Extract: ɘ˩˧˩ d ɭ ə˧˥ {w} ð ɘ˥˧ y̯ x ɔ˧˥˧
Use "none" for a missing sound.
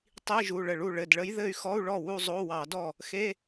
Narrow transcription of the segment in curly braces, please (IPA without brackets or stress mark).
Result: j